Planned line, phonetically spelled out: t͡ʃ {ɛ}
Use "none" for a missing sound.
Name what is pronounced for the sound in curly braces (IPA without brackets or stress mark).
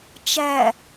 æ